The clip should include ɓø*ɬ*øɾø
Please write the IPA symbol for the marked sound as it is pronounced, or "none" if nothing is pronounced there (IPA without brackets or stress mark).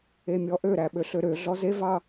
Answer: ɬ